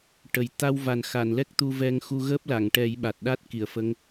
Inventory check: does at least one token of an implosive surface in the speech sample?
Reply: yes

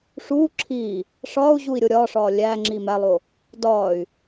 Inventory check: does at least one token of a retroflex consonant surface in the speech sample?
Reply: yes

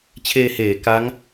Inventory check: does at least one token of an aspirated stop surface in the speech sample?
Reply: yes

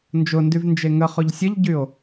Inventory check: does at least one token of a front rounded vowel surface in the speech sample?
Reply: yes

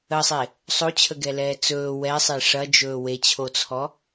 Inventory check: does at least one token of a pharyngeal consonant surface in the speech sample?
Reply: no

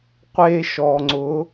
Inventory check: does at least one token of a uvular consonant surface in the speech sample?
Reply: yes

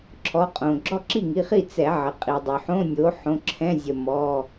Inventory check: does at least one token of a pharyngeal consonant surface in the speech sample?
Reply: yes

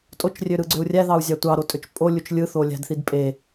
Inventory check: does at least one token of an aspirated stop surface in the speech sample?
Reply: no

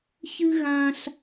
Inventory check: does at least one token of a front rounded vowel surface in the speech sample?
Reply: no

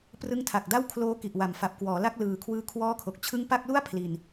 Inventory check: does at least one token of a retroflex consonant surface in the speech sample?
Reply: no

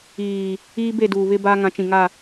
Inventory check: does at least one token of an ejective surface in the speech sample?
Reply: no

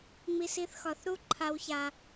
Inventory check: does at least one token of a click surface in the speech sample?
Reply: yes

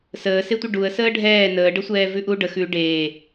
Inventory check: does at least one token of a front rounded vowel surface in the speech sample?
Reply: no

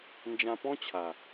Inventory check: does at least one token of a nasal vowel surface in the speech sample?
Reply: yes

